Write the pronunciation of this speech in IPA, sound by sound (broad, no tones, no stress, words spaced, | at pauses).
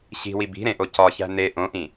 ɕi̤wi bi̤ɾẽʔo cɒçæ̤ ne ʔõʔĩ